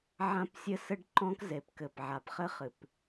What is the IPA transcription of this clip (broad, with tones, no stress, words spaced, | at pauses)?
ʕã˦psʲɘ˦sɘ˦ɖ ǃɔ̃˦k ze˨pkɘ˨p ʕa˨pχɘ˦ χɨ˨p